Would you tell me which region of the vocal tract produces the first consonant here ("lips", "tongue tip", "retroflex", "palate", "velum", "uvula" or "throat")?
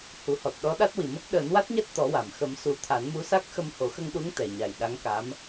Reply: throat